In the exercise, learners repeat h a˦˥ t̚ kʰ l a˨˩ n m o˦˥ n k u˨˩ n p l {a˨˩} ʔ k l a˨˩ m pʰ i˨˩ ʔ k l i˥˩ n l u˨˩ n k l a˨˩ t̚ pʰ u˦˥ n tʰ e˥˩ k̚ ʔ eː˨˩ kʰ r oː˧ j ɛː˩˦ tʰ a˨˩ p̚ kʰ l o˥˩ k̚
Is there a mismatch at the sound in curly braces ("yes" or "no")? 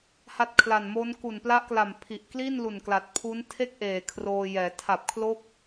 yes